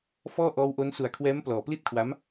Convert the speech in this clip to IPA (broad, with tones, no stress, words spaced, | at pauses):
fɔː˥˩ʔɔː˦˥wʔo˦˥n su˨˩a̯kʰwɛː˦˥m plɔː˨˩pli˥˩t̚kʰwa˦˥m